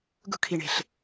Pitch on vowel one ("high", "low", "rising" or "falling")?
high